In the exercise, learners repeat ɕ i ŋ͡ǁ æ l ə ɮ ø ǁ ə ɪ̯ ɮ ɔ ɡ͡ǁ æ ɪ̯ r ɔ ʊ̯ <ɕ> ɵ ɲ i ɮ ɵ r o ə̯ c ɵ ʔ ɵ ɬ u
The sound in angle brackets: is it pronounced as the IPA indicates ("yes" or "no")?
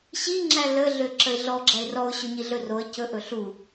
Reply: yes